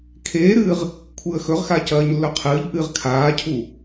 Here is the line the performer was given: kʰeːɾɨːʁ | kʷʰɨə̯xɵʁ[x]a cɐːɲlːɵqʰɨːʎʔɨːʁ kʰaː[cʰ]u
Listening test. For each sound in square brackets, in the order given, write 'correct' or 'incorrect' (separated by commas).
correct, correct